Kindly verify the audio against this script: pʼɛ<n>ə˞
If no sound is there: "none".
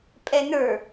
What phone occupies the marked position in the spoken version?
n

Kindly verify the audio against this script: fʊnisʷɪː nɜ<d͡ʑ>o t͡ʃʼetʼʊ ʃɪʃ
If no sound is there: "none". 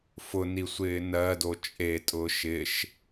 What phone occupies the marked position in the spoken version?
d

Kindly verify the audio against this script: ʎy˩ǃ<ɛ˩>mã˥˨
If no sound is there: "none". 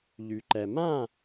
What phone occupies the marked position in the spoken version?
ɛ˩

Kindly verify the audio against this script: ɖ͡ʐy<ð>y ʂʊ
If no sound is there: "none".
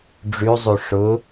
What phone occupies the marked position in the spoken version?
zˤ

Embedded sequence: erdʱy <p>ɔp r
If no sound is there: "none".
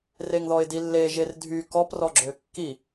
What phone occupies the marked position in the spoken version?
k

